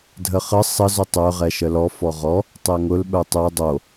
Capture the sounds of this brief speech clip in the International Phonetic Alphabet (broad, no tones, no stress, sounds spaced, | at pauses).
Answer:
dʱ ə χ ə sˤ ə z ʊ tˤ œ ʁ ɛ ʃ ə l ɔ f ɔ ʁ ɔ | tˤ ɛ ŋ ʊ l ɓ œ tˤ œ dˤ o